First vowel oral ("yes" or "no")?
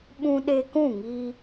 no